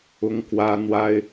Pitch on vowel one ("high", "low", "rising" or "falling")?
high